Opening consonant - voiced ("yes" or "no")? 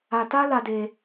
no